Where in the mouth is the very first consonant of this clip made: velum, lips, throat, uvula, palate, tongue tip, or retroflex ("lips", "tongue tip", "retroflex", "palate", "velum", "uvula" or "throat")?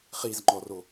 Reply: uvula